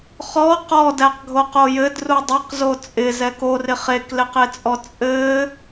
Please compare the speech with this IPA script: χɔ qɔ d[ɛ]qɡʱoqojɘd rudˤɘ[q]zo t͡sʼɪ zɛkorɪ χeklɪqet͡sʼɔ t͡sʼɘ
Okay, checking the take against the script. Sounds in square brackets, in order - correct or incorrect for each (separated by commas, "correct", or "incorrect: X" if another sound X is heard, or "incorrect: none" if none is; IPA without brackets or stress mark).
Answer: incorrect: æ, correct